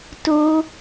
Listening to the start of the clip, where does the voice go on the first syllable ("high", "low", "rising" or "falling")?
high